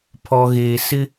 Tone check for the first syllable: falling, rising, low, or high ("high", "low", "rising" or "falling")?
low